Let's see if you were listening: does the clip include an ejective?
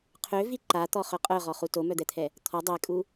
yes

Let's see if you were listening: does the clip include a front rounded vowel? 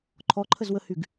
yes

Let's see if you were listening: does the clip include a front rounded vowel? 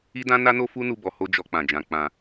no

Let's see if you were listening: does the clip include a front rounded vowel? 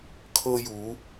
no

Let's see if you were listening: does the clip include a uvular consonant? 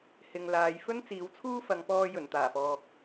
no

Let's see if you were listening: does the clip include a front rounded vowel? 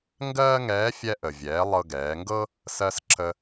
no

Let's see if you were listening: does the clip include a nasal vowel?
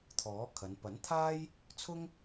no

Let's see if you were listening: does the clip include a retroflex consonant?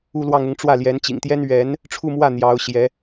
yes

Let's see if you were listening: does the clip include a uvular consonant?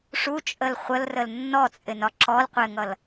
yes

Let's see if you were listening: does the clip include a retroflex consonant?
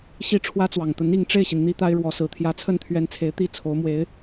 yes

